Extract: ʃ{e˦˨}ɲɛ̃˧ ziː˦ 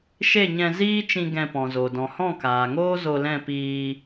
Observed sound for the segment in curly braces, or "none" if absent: e˦˨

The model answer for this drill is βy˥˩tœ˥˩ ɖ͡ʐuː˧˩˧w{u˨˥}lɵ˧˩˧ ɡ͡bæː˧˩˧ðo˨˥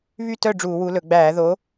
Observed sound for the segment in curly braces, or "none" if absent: u˨˥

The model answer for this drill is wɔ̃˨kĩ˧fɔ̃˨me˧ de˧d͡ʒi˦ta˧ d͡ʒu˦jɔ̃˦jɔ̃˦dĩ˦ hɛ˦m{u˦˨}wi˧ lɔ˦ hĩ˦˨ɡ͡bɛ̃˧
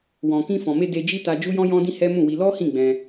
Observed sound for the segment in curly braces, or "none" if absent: ũ˦˨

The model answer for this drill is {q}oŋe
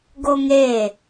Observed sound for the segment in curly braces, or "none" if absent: ɡ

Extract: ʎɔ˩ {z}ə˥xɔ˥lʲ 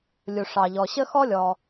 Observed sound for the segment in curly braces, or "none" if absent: ɕ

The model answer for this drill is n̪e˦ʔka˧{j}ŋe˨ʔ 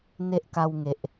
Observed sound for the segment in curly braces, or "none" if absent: w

